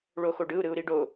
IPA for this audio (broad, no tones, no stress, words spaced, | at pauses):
ɭoxoɖɯu̯ ɾɯu̯ɾiɖo